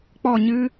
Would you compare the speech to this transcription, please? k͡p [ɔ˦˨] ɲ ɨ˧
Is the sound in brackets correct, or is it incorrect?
correct